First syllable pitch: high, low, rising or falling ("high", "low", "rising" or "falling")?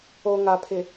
low